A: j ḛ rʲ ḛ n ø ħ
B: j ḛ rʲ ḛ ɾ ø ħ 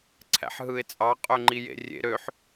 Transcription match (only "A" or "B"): B